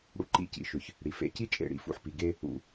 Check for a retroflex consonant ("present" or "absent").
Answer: present